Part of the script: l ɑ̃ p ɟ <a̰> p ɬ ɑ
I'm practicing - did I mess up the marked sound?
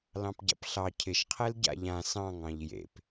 no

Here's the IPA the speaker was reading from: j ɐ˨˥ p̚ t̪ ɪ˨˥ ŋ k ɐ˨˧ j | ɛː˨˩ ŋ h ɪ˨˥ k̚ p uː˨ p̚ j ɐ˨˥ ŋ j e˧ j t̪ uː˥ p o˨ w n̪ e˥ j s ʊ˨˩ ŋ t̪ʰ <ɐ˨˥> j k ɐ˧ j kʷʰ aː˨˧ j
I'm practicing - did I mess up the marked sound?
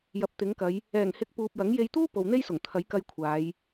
no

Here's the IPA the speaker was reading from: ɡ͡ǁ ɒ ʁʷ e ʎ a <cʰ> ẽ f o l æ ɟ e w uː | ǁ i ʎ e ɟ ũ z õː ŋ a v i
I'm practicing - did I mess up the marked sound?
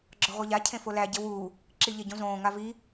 no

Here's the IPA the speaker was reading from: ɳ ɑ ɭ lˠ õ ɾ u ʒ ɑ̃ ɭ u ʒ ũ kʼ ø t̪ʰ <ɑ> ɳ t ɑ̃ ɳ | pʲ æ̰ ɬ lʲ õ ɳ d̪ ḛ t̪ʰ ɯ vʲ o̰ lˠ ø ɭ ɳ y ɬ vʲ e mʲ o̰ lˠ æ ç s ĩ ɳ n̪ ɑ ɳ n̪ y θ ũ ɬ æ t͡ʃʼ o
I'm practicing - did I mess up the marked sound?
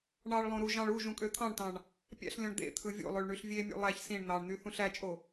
yes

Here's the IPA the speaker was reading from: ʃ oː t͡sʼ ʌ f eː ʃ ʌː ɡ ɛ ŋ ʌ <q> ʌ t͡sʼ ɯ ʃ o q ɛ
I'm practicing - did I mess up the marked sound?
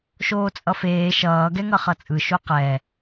yes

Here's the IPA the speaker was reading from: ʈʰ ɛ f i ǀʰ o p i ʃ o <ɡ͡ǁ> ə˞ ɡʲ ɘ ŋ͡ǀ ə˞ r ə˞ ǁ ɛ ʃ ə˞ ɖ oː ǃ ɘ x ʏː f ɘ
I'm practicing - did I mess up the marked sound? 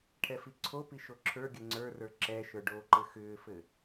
yes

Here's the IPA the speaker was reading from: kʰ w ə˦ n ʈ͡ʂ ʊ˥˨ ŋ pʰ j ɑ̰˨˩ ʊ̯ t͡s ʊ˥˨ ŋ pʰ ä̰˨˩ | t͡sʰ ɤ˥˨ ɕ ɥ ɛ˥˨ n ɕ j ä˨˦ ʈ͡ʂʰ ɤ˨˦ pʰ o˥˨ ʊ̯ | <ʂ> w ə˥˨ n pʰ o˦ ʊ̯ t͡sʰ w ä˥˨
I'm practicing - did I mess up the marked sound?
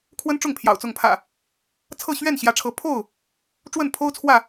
yes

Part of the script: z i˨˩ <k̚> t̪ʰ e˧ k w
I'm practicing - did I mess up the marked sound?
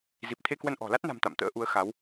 yes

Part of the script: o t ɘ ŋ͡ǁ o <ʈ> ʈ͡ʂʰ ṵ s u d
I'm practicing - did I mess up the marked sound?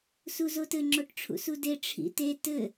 no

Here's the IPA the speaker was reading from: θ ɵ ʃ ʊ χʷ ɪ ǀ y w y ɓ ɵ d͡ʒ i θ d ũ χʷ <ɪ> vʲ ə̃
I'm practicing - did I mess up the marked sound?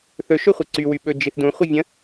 no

